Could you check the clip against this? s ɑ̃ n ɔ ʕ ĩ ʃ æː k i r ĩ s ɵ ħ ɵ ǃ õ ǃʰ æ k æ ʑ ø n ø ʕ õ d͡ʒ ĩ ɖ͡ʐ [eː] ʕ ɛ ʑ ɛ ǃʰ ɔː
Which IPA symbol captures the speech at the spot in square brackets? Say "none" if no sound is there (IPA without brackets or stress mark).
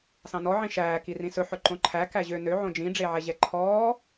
e